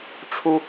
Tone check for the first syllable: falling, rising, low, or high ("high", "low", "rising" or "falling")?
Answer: high